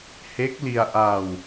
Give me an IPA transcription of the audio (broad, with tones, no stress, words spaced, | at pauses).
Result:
he˦˥k̚li˧a̯ʔa˧w